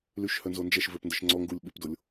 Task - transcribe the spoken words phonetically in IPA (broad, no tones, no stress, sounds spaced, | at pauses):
l y ʃ h œ n z o n d͡ʒ ɛ ʃ v ø p n d ə ʃ ŋ͡ǀ ɔ ŋ ɡ u lʲ ɓ i p d o lʲ